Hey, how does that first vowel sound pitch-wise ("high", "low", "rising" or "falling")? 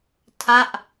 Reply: falling